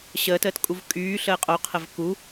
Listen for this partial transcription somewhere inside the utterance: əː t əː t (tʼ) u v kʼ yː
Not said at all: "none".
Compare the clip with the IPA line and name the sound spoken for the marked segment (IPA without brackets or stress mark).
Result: kʼ